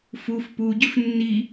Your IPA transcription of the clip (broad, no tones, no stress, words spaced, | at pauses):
fuf puɟʏf nːi